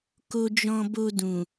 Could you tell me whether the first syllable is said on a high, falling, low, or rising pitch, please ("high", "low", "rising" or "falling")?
low